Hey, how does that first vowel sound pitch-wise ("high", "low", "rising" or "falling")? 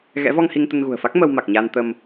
rising